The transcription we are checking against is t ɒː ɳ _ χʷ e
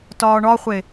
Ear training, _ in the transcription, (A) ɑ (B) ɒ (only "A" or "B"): B